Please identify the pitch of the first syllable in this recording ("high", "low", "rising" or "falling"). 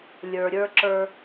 low